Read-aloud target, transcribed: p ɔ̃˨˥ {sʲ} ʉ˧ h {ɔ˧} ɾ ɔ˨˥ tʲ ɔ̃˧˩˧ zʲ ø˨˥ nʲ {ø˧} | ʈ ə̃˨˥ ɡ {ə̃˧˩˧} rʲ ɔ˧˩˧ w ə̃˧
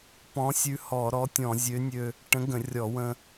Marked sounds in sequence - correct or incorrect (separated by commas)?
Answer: correct, incorrect, correct, correct